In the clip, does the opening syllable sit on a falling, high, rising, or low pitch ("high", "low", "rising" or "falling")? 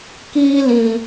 high